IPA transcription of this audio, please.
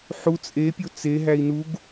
ħ u t͡sʼ e pʲ o t͡s e ɦ æ i̯ n u ɡ

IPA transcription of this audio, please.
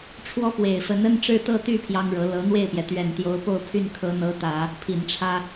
ʈ͡ʂʰ w ɔ˧˥ p w e˨˩ ɪ̯ f ə˧˥ n ə˥ n ʈ͡ʂ ɻ̩˥˧ t̪ ɤ˥˧ t̪ y˥˩ pʰ j ɑ˥ ŋ ɻ ɤ˧˥ l ɤ˧˥ n̪ w e˥˩ ɪ̯ p j ɛ˩ t̪ ɥ ɛ˨˩ n t̪ j o˧˥ ʊ̯ p o˥˧ ʊ̯ pʰ y˥˩ n kʰ ɤ˧˥ n̪ ɤ˧˥ t̪ ä˨˩˦ | pʰ i˨˩ n ʈ͡ʂʰ ä˥

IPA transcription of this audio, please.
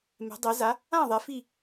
m ɛ̤˩˥ dˤ ɛ˩˥ z a˩˥ | ã˥˩ ðˤ ɛ˩˥ f i˥˩

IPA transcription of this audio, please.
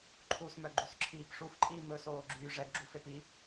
ǃʰ u s m œ ɡ͡ǃ u s ǁʰ iː p ʂ u f ǃʼ iː m ɵ s oː ɡ͡ǁ yː ʐ ɛ ɡ ɡ͡ǁ u f e p i

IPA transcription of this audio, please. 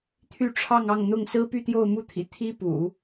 t̪ʰ y˥˧ ʈ͡ʂʰ ɑ˥˧ ŋ ɑ˥˧ ŋ n̪ ʊ˥˩ ŋ s ɹ̩˥ p y˥˧ t̪ j o˥˧ ʊ̯ m u˥˩ t̪ʰ ḭ˨˩ t̪ʰ i˥ p ṵ˨˩˦

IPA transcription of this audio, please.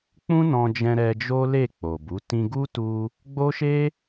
k͡p ũ˦ n ɔ̃˧ d͡ʒ ɛ̃˧ ɾ ɛ˧ d͡ʒ o˦ l e˦˨ k͡p o˨ b u˨˦ t ĩ˧ ɡ u˦ t u˧ | ɡ͡b o˦ ʃ e˦

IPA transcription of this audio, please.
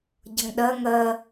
ɟ ʌ ŋ ɗ ɜ ŋ ɜ

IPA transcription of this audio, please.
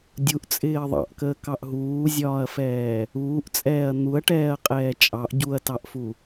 dʲ u ʔ t͡sʼ ɪː ɐ̯ ðˤ ɑ̰ ʔ k əː k ɑ ʔ ɦ uː zʲ ɒː ɐ̯ f ɛː | uː ʔ t͡sʼ ɛː ɐ̯ n̪ u ɐ̯ ʈ ɛː ɐ̯ qʼ ɛː t͡ʃʼ ɑ ʔ ɟ u ɐ̯ t ɑ ʔ f u

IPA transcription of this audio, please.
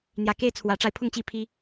n̪ j ä˨˦ k e˦ ɪ̯ t͡sʰ w ä˨˦ ʈ͡ʂ a˧ ɪ̯ pʰ ʊ˥˨ ŋ t͡ɕ i˥˨ pʰ i˦

